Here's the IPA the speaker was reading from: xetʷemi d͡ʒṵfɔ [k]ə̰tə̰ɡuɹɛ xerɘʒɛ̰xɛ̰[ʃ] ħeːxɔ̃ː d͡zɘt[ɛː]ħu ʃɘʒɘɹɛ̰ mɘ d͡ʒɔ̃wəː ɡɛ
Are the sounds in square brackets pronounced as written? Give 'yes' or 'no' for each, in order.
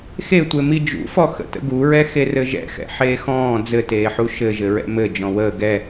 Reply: no, no, no

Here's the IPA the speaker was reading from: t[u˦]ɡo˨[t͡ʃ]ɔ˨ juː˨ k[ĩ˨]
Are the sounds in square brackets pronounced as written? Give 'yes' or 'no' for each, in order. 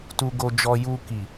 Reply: no, no, no

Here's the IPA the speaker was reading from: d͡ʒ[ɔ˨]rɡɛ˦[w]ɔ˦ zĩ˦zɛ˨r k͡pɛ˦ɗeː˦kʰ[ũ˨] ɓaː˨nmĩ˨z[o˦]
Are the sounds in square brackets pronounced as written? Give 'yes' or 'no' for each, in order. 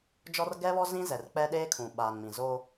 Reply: no, no, yes, yes

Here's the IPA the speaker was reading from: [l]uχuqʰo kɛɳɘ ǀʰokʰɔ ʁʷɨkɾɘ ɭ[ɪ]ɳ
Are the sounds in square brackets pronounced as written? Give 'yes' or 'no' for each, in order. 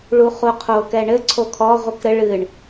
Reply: no, no

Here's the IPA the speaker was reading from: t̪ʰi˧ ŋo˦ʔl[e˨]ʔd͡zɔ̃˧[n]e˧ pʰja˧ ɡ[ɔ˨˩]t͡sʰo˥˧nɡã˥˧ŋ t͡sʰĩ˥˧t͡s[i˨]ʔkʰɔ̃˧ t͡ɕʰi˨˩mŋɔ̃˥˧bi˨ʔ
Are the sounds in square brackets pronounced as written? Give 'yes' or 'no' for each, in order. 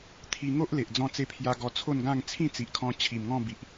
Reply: yes, no, no, yes

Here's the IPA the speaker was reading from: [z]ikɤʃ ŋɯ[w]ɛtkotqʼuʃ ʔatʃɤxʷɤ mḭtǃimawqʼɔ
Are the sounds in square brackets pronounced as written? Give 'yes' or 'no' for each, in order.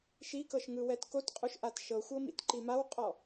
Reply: no, yes

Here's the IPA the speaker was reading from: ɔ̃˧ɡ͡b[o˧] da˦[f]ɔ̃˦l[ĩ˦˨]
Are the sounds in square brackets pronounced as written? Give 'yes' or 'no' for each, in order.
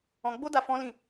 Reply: no, yes, yes

